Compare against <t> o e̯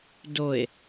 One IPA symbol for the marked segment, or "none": d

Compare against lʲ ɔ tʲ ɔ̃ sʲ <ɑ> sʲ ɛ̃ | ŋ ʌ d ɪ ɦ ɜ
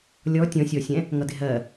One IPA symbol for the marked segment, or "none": ɔ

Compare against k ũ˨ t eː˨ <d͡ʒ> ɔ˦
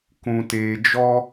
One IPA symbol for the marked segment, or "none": d͡ʒ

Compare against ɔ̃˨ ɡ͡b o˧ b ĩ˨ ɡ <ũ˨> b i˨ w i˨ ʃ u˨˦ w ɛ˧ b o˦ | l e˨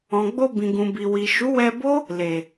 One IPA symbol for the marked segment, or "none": ũ˨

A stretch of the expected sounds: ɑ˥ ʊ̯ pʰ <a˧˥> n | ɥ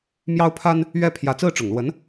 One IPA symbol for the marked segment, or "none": a˥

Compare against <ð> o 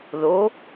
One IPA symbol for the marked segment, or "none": ð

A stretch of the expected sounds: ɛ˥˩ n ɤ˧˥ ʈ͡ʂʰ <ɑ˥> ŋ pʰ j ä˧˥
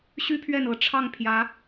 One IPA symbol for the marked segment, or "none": ɑ˥˩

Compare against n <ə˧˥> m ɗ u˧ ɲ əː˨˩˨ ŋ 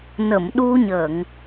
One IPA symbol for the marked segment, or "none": ə˨˩˨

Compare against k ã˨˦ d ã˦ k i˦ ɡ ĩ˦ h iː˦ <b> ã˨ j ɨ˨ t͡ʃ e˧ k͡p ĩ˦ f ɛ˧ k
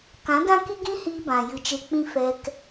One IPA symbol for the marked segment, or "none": b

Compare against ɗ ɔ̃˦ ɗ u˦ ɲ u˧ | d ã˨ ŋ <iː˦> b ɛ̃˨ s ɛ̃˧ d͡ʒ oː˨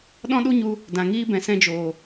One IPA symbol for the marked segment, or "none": iː˦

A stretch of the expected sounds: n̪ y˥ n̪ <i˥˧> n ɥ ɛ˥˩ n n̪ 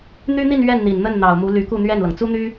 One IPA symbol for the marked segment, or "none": i˥˧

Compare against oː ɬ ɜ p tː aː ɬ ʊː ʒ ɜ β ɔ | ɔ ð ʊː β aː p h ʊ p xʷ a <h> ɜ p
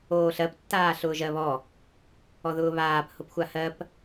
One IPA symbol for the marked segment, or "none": h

